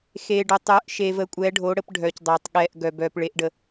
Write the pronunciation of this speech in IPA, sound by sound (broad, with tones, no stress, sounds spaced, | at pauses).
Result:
x eː˨ ɖ o˨ tˤ œː˨˦ ʔ ʃ eː˨ v əː˨˦ kʷʼ ɛː˨˦ ɖʱ o˨˦ ɽ ə˨˦ p ɖʱ œː˨ c dˤ oː˨ tˤ ɠ ɛː˨ ʔ ɡ œ˨ b œː˨ p ɭ e˨˦ ʔ ɖ ə˨